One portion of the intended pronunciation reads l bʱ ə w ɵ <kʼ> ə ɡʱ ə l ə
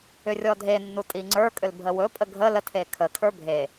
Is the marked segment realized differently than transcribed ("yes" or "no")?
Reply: yes